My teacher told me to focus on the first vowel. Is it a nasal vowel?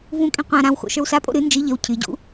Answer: yes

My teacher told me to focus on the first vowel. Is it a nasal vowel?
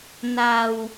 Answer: no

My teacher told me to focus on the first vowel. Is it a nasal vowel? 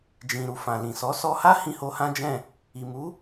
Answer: yes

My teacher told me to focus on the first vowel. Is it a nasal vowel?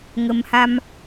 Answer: no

